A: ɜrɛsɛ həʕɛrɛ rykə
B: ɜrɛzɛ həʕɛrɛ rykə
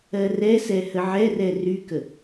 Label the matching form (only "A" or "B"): A